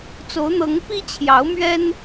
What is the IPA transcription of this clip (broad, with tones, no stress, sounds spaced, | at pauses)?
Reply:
t͡s o˨˦ ʊ̯ n̪ ɤ˨˦ ŋ p i˦ t͡ɕʰ j ɑ˨˦ ʊ̯ m ɥ ɛ˦ n